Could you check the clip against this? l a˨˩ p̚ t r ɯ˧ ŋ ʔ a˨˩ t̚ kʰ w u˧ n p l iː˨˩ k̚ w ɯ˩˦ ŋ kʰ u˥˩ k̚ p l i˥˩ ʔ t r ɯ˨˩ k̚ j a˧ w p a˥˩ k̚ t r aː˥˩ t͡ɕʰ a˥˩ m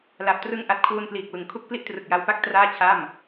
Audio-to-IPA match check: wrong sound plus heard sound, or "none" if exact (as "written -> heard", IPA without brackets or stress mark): none